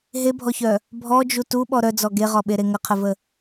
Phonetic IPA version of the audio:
ɦ e bʱ ɔ ç œ | bʱ ɔ d͡ʒ u t u ɓ ɔ ɾ œ d͡z ɔ ɡ e ʁ ɔ ɓ e ɾ e ŋ ə qʰ ə v ə

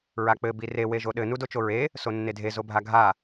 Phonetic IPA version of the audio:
ɹ a k͡p ɘ b i r e w e ʒ o ɗ ɘ n u d o t͡ʃ o ɹ e | s o nː e dʱ e z o bʱ a ɡʱ a

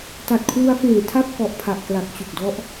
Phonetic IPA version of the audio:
t a˨˩ t̚ kʰ w u˧ a̯ f eː˨˩ tʰ a˥˩ p̚ k ɔ˨˩ ʔ pʰ a˨˩ ʔ k l a˨˩ k̚ t͡ɕ u˨˩ k̚ d ɔ˦˥ ʔ

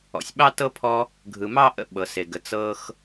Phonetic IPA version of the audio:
ɔ̰˩ sʲ ɓ ɑ˥ t ɤ˥ pʰ ɔ˦ | ɡʱ ɯ˨ m ɑ˥ ʔ ə̰˦ ɓ ɤ˩ s e˩ ɡ ə˨ t͡s ɤ˦ x

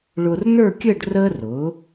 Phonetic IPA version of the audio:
ɭ ʊː˧ r n ə˞˥˧ kʲ əː˥˧ ɖ r əː˥ r ʊ˩˧

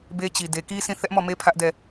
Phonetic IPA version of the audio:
b e˦ t͡ɕ i˨ d e˨ k i˦ sʰ ĩ˦˨ θ ɛ˦ ʔ m ɔ˦˨ m e˦ pʰ ä˦ ʔ d ɛ˦˨

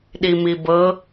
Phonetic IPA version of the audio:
ɗ i m i b ɤ

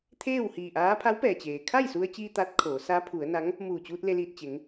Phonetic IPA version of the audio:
t̪ʰ eː˥˨ w h iː˧˩ ʔ aː˧˥ pʰ a˧˥ w p ɛː˩ t͡ɕ eː˩ kʰ a˥˨ j s u˧ ə̯ t͡ɕ iː˧ t̪ a˧˥ t̚ kʰ oː˩˧ s a˧˥ pʰ u˩˧ ə̯ n a˧˥ ŋ | m uː˧˩ t͡ɕ uː˧ t̚ l e˧ l iː˧˩ t̚ t͡ɕ e˩˧ ŋ

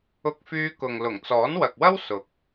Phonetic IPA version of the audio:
ʊ˧ k̚ f yː˧ k ʊ˨ ŋ l ʊ˨˩ ŋ t͡s ɔː˨˥ n w ɐ˨ k̚ w ɐ˥ w s ʊ˨ k̚

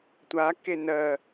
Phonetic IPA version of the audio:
tʷ a k e n ɜ

